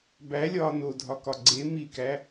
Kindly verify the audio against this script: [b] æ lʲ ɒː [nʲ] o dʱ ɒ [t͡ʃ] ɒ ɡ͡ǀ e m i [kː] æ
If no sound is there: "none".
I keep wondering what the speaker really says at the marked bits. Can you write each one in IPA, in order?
b, n, k, k

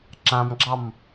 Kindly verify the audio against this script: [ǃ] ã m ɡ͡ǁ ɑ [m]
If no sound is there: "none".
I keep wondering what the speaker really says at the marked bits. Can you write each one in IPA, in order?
ǁ, m

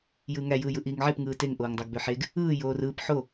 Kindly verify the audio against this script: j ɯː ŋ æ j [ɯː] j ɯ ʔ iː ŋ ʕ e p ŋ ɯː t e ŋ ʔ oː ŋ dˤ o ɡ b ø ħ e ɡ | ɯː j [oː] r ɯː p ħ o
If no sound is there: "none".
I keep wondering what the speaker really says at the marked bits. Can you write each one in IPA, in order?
ɯː, oː

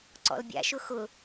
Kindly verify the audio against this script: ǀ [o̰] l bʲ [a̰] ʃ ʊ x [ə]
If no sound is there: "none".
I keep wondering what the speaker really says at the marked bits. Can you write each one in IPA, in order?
ɔ̰, a̰, ʊ

